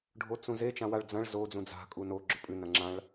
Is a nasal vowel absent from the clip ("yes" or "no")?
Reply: no